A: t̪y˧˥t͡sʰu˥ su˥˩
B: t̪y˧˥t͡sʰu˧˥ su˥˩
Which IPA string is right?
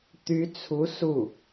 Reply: B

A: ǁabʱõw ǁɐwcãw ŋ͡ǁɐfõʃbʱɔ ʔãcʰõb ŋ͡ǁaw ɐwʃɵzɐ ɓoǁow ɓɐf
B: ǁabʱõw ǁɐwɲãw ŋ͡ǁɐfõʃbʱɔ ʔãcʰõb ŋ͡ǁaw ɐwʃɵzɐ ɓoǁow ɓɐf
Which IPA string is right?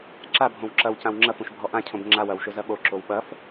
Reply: A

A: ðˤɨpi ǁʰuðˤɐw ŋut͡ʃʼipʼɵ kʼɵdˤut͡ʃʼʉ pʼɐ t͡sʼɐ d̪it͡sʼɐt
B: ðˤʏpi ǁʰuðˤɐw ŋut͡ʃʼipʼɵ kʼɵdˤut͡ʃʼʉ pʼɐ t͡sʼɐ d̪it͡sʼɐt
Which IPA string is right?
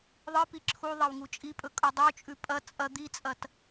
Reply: A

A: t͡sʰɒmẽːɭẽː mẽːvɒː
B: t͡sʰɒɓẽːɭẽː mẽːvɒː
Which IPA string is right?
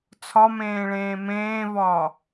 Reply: A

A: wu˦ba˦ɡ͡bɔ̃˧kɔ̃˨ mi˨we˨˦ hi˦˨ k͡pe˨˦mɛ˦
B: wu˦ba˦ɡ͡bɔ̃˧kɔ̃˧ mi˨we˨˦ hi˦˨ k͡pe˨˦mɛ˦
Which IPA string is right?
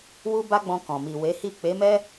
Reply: A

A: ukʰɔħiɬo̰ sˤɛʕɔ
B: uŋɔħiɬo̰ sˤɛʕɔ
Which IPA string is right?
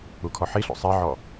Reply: A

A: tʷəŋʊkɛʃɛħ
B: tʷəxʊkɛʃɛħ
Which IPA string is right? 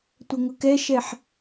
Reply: A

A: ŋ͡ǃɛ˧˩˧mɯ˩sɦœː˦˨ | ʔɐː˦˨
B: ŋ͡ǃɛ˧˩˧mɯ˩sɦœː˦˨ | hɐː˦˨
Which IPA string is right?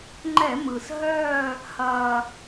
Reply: B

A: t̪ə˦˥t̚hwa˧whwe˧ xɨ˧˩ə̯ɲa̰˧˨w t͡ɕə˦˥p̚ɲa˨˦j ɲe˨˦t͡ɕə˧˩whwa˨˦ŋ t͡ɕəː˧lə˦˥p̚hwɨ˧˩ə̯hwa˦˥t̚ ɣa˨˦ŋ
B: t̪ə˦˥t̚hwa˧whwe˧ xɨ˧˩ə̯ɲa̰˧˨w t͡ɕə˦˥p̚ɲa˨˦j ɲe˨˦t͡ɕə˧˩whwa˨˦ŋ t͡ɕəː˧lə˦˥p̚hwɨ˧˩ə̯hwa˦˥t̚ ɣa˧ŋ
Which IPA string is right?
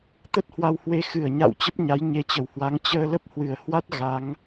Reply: A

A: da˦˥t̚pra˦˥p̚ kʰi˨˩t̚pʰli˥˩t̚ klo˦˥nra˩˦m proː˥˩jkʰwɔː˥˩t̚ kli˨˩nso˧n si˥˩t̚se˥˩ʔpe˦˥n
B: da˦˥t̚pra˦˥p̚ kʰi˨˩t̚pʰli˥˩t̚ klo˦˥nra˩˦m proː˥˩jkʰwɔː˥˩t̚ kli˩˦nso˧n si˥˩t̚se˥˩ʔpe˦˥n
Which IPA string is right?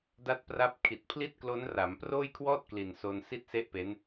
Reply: A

